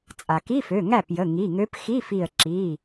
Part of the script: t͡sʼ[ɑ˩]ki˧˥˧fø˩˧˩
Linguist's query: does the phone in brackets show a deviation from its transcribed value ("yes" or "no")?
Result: yes